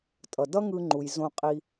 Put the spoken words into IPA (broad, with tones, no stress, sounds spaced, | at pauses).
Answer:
tʼ ʌ˩ d ʌ˥ ŋ ɯ˧ ŋ͡ǃ u˩ j z õ˧ qʼ i˧